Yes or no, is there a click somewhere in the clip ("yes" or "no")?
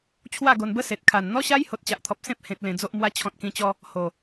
no